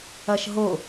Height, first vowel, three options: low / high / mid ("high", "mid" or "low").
low